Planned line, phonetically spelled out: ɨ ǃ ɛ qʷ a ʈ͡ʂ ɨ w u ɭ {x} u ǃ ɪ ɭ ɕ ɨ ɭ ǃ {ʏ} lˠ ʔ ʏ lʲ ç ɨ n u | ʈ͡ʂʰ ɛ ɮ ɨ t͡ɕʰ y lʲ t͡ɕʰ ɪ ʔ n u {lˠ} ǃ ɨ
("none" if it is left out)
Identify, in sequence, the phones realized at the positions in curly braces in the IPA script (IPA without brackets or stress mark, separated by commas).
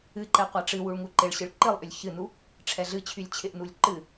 ŋ, ɨ, lʲ